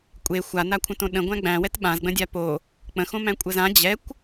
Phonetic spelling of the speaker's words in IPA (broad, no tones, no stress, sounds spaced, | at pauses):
kʷʼ e xʷ a n a kʷʰ ə̃ t õ ɗ ə̃ ɡʷ æ̃ ɡ͡b æ̃ w ɛ t ɓ ã z ɡ͡b ə̃ dʲ a p o | k͡p ə̃ x õ m æ̃ kʷʼ ə z ã d͡ʑ ɛ kʷ